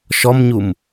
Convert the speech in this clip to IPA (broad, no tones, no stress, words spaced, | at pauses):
ʃɔmɲum